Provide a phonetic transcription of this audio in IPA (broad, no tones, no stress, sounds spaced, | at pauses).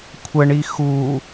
kʷʰ ə ɳ i x u